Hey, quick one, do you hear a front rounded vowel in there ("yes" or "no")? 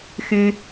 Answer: yes